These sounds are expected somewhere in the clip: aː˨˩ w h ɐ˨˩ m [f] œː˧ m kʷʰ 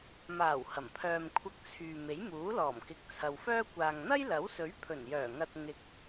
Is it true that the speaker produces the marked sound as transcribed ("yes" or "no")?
no